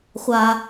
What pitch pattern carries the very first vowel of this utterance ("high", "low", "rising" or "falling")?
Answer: high